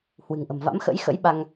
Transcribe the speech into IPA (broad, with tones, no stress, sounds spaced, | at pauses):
h w ɨ̤˨˩ ŋ ʔ ə̤˨˩ m v a̰˧˥ m x ə̰˧˥ j x ə̰˧˥ j ɓ a˧ ŋ